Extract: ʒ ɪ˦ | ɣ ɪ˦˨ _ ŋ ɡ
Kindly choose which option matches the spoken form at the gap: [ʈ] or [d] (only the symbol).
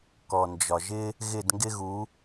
d